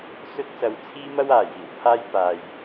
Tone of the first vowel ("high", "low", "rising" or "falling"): high